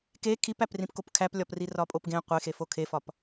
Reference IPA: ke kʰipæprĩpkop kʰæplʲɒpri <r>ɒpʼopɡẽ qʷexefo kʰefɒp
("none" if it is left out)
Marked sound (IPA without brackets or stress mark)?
r